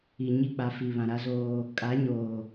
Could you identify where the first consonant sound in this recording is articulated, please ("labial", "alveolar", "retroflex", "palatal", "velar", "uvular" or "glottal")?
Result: palatal